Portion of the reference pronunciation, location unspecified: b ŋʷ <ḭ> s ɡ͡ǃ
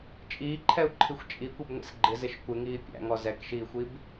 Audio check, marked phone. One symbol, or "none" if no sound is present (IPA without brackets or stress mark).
ḭ